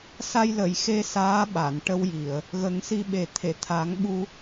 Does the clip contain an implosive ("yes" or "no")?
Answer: yes